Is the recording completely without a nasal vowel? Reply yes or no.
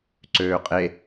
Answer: yes